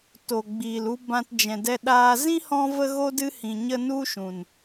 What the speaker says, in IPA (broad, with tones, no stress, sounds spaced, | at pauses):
t o˨ ɡ͡b iː˨ l u˧ b ã˧ t d͡ʒ ɛ̃˨ d ɛ˧ ɗ aː˧ z ĩ˦ h ɔ̃˧ v ə˧ ɣ o˧ d ɨ˧ h ĩ˨ ɲ ə˧ n u˦ ʃ ũ˨ n